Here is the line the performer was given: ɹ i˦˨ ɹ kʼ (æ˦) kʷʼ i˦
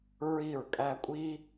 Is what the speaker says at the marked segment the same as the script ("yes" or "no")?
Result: yes